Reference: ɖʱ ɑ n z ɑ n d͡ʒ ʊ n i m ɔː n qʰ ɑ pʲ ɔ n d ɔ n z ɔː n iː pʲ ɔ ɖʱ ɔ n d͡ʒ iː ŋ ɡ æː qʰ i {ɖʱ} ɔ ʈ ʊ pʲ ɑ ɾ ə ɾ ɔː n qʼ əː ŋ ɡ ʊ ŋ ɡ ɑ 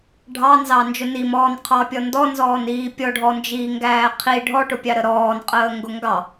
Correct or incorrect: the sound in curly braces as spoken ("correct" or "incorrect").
correct